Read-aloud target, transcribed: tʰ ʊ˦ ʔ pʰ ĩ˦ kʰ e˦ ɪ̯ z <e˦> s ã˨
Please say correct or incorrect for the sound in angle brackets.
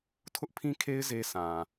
correct